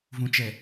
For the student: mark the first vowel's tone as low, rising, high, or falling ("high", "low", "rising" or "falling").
low